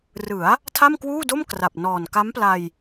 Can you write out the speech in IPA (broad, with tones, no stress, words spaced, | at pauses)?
rɯ˩˦a̯ | tʰa˥˩mkwuː˥˩do˥˩m kra˨˩p̚nɔː˨˩n ka˦˥mpla˧j